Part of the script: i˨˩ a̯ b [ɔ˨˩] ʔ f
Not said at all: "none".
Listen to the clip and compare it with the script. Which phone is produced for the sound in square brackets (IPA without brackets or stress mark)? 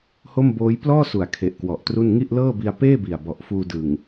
ɔ˨˩